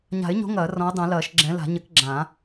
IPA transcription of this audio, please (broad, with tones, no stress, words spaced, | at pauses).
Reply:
ɲa̤˨˩˦ɪ̯ɲo̤˨˦ ŋɐː˨˩˦ rɔ̃˨˦ʊ̯dˤɛ̃˨˩˦lɐː˨˩˦ʃ ɡ͡ǁɛ̃˨˦la̤˨˩˦ ɲɘ˨˦k ɡ͡ǁã˨˩˦